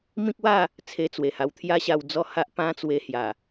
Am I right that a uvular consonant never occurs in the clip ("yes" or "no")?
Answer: yes